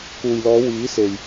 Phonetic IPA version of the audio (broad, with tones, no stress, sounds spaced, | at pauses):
k uː˨ j l ɔː˨˧ w iː˨˥ s e˨ j